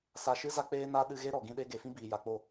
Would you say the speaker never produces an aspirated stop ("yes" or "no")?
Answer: yes